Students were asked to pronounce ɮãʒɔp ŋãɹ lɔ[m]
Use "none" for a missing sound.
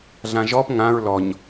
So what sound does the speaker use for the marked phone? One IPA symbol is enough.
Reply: ɲ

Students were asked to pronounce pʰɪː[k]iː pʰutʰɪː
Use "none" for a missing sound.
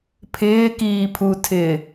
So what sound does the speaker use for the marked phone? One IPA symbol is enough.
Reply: k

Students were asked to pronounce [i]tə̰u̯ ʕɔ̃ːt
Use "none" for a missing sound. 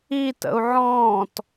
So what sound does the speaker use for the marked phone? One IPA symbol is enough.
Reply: i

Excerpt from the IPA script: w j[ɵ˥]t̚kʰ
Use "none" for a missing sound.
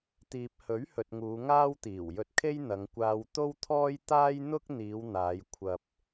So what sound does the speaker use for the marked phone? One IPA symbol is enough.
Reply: ɵ˧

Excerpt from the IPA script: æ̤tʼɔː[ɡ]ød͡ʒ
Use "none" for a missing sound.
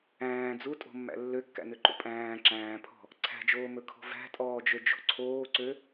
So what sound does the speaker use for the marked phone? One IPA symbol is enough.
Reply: d͡ʒ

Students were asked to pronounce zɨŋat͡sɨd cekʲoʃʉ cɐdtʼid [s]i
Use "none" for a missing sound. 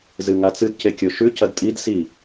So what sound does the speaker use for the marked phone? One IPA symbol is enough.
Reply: s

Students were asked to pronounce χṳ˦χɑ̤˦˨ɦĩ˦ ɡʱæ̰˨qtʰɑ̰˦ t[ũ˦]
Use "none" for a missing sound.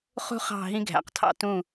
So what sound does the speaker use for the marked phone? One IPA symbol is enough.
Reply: ũ˦˨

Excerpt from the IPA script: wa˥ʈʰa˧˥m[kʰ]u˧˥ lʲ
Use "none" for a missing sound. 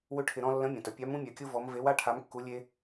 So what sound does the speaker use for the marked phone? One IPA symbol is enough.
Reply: kː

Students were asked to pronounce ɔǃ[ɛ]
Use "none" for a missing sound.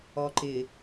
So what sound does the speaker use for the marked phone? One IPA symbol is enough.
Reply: ɪ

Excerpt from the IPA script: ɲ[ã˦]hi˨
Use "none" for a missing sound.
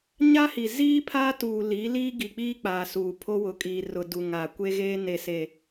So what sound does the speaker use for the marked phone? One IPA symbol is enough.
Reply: a˦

